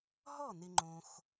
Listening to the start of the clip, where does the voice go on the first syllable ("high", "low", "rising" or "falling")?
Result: falling